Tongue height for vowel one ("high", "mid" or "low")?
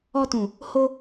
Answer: mid